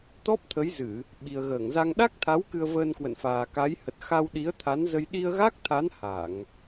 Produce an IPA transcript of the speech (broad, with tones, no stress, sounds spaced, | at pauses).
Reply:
t̪ ɔ˦˥ p̚ t̪ʰ ə˨˦ j z ɨ˧˩˨ | ɓ i˨˩ ə̯ ɣ əː˧˩ ŋ z a˧ ŋ ɗ a˦˥ k̚ t̪ʰ a˨˦ w k ɨ˧ ə̯ v əː˧ n k w ə̰˧˨ n f aː˨˩ k a˨˦ j h ə˨˩ t̚ x a˧ w ɗ i˨˦ ə̯ t̪ʰ a˨˦ n z ə˧ j ɗ i˧ ə̯ ɣ a˦˥ k̚ t̪ʰ a˨˦ n h a˧˩˨ ŋ